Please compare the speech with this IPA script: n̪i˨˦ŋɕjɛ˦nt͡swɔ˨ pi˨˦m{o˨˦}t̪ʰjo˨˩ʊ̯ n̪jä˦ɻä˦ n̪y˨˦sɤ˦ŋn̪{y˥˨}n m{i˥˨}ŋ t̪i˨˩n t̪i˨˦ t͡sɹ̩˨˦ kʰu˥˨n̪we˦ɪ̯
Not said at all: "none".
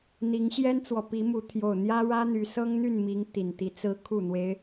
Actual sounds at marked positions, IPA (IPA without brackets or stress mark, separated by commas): u˨˦, y˥˨, i˨˦